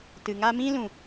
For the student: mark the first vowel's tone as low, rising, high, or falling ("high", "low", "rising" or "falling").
low